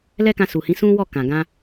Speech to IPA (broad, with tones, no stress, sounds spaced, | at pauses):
l ɛ˦ k ã˧ s u˨ h ĩ˨˦ s ũ˦ w ɔ˦˨ k ã˨ ɡ ã˧